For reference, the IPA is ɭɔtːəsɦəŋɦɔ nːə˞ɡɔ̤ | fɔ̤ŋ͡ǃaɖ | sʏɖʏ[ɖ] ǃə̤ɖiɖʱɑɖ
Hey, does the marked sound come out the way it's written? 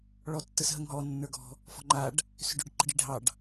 yes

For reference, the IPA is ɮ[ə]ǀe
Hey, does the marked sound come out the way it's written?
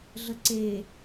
yes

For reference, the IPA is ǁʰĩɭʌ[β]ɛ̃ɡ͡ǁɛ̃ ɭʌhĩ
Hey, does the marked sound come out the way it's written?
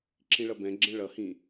no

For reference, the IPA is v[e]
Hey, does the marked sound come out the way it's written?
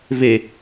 yes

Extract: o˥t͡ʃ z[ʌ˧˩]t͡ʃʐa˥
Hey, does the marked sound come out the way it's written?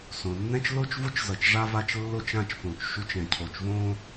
yes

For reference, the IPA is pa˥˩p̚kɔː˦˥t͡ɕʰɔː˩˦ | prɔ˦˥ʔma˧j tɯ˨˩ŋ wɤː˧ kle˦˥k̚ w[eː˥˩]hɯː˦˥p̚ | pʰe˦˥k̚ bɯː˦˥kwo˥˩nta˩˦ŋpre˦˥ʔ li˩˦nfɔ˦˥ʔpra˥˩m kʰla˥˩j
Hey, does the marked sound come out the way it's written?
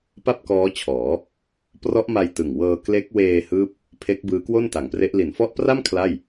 no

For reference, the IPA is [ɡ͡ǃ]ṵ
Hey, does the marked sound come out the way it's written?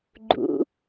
yes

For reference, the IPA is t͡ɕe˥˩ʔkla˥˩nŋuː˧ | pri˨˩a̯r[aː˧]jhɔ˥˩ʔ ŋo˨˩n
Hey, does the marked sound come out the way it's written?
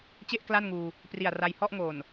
no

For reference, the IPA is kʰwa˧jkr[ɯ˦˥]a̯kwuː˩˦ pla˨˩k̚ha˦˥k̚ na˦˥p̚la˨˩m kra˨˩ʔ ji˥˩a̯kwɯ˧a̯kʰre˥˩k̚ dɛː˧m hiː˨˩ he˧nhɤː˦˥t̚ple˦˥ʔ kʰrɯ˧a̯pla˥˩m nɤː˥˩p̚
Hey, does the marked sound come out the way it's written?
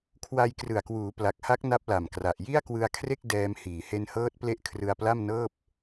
no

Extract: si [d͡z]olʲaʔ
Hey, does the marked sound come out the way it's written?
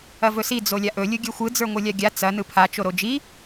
yes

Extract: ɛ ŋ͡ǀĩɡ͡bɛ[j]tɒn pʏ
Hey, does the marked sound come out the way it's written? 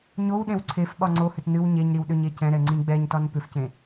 no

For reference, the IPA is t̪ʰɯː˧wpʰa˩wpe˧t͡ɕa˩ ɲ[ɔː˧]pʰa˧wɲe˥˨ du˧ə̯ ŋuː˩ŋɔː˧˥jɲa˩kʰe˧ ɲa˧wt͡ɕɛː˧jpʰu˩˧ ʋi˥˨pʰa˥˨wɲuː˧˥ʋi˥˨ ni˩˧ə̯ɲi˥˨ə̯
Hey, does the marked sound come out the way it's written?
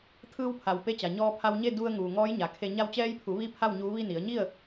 yes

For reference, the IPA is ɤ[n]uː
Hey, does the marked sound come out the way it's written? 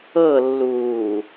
no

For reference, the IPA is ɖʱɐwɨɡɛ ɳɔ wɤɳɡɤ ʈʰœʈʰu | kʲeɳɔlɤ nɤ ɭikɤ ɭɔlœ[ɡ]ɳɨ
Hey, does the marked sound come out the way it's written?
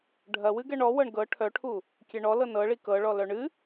no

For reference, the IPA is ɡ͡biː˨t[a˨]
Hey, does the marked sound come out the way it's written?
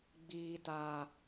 yes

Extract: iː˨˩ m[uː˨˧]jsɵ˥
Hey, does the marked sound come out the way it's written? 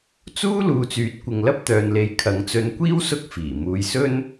yes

